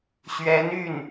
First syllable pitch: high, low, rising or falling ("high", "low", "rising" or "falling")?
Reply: rising